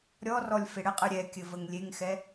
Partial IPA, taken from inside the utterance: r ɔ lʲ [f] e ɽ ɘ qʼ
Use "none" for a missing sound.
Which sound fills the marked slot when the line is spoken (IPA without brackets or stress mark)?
f